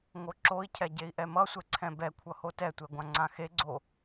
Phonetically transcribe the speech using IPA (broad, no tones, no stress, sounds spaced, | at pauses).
ŋ o ǁ o i̯ cʰ ɛ ɟ e i̯ ʔ ɛ m ʌ sʷ ɛ ǀʰ ɛ̃ b ɛ kʷʰ ʌ h o t ɛ tʷ ɛ ɡʷ ã ŋ͡ǀ ã x e ɡ͡ǀ o